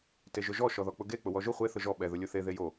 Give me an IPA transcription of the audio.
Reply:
t e ʒ ʊ ʒ ɔ ʃ ɔ ð ɔ k͡p ʊ ɡ e k͡p ʊ w ɔ ʒ ʊ χʷ e θ ʊ ʒ ɔ ɓ ɛ ð ʊ lʲ o θ e ð e j o

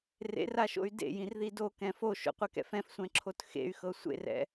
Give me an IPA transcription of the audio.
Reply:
r ḛ r a ʃ o̰ y̯ d ḛ j ĩ r ð i d o k ɛ̃ f o ʃ o̰ qʷ ɛ k ɛ̰ f ɛ̃ f sʷ ɛ̃ ǁʰ o t x ḛ y̯ x ɤ sʷ ḛ r ɛ̰

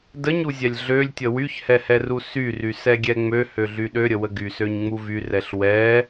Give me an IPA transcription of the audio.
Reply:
d ə ɲ u zʲ ɛ lʲ ɮ ø lʲ tʲ ə w y ç h ɛ h ɛ r u s y r y s ɛ ɡʲ ɛ ŋ͡m ø h ø ɮ y ɗ ø ɾʲ ə w ə ɡ y s ø ɲ ŋ͡m u v y r ɛ ɬ w ɛ

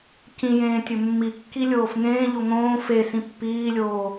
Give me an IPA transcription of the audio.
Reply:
c ĩ j ẽː tʲ ɵ mː i kː i lʲ oː f ŋ ẽː ʎ o ŋ õː f e s ĩ pː iː lʲ oː

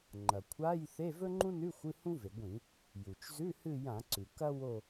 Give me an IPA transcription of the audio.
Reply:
ŋ͡ǃ ɐ˩ kʷʰ a˧˥˧ j θ e˧˥˧ v ɵ˥ ŋ͡ǃ ũ˥ n ʉ˧˥˧ xʷ ɨ˧˥˧ h ũ˥ v e˩ ɡʷ ĩ˧˩˧ | j u˩ t͡ʃ z ʉ˧˥˧ h ɨ˦˨ j ã˧˩˧ ǀ ʉ˩ k ɐ˥ w o˦˨

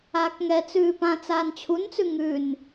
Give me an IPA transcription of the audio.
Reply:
aː k ŋ ɛ t͡s ʉː p ã t͡s aː n t͡ɕʰ u n t͡s ʉ ŋ ʉ n

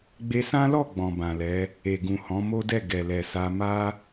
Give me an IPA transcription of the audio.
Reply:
ɡ͡b e˧ s ã˦ l ɔ˦˨ ɡ͡b ɔ̃˨ b ã˨ l ɛ˨˦ | e˨ ɡ ũ˨ h ɔ̃˨˦ m o˦ d ɛ˦˨ ɡ ɛ˨ l ɛ˨ s a˧ m a˦

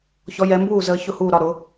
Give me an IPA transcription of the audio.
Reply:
ç ɔ˨˦ j ɛ˨˦ m b uː˥˩ z əː˨˦ ç ʊ˥˩ h uː˥˩ ɾ ɒ˥˩ ɾ ʊ˨˦

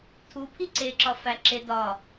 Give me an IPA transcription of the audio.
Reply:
tʰ u pʰ i ǀ e ǁ ɒ f æ ǁ e d ɒ

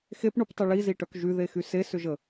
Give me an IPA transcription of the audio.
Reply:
x e p ɳ u p tˤ y ɭ i z i ʈ œ k ʒ y ð e x y s e s ʏ ʒ ə

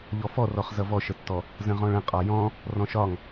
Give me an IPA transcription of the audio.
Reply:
ʎ ɔ f ɔ r ɔ χ z ʌ v ɔ ʃ ə tː ɔ | z ə̃ ʁ ɔ̃ ɭ ə̃ qʼ ɒ j ɔ̃ | r ɔ̃ ʃ ɒ ŋ

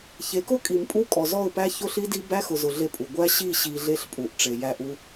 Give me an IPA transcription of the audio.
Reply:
ç e˨˦ k ʊ˦ kʼ i˨ m pʼ u˦ kʼ ɔ˨ z ɔ˦˨ ʊ̯ p æ˦ ç ʊ˦ ɬ i˦ d i˦ b æ˦ x ʊ˨ z ʊ˨ ɮ e˦ pʼ u˨ ɡʷ æ˦ ɕ i˦˨ ɕ i˨ ɮ e˦ ɬ pʼ u˨ ʔ ʈ͡ʂ e˨ j æ˦˨ ʔ u˦

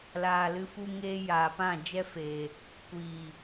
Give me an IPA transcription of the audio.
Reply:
l aː˨ l ɨ˧ f u˧ ŋ eː˧ j aː˨ p ã˦˨ d͡ʒ ɛ˦ f eː˨ | kʷ iː˨

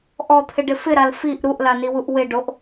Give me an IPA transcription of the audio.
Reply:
ʔ ɔ t̪ʰ ɪ ɖ ɪ f ɪ ɾ a l f i ʔ ɾ u ʔ l a n i w u ʔ w ɪ ɖ o ʔ

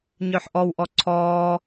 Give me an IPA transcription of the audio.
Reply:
ɲ œ ħ ʔ ɔ w ʔ ɔ ǀʰ ɔː

